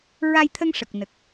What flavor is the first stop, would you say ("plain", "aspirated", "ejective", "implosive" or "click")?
aspirated